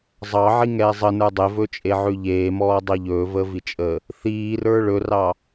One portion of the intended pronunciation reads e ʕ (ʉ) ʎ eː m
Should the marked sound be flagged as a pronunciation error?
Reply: no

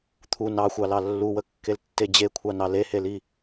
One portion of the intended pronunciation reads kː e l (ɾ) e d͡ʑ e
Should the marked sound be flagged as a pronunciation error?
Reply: yes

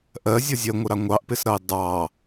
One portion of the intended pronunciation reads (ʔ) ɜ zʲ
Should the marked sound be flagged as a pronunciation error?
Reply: no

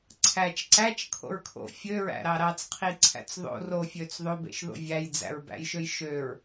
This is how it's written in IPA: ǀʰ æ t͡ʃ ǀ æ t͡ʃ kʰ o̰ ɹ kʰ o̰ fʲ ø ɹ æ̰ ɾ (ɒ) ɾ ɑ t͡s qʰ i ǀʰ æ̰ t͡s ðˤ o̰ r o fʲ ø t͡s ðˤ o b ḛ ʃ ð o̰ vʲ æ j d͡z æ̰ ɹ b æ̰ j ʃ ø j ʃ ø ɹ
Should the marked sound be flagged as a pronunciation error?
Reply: yes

